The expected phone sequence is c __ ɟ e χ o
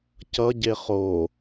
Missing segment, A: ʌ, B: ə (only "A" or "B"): A